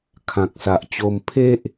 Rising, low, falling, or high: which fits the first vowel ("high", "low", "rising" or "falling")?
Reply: low